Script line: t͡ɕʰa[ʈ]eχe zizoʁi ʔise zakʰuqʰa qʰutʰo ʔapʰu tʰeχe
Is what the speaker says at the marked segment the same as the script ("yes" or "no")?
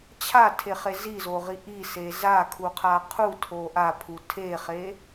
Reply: no